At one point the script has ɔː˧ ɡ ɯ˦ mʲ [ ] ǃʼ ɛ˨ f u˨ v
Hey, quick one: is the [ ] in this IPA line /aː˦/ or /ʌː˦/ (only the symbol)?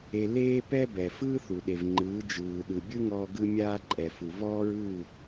aː˦